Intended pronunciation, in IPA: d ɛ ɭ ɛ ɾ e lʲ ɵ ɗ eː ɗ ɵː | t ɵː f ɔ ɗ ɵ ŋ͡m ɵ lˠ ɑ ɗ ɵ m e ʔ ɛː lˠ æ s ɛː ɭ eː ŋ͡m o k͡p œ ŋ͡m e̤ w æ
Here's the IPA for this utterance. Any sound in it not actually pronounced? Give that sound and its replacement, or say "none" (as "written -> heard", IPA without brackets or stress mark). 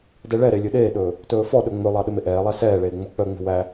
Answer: none